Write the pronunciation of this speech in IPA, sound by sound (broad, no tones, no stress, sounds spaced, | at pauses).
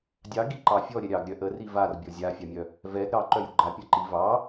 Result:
dʲ ɑ ɡ i ǃ ɑ fʲ ɔ ɾʲ ɛ ɾʲ ɑ ɡ ɾʲ œ ʔ ə r i v a r bʲ ɔ zʲ a fʲ ɑ mʲ œ | v ɛ ɡ ɾ ɑ ǃ œ j u ɡ͡ǃ a pʲ a ǃ i v ɑ